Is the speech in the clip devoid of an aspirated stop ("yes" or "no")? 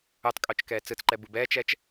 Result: yes